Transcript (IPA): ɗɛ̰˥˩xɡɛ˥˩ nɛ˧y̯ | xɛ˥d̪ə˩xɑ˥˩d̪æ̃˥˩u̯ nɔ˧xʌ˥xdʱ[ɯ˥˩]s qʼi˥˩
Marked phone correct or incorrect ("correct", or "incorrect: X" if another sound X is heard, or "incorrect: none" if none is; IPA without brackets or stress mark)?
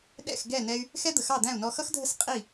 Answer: incorrect: ə˥˩